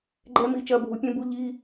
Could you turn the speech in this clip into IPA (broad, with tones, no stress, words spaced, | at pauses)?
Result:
ɡ͡ǃɛ˦˥mi˨˥ t͡ʃɐ˧˥˧bʱu˨˥pʲẽ˦˥bu˦˥ ʎi˧˥˧